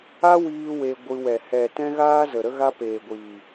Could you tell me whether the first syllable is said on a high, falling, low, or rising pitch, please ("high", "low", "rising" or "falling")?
high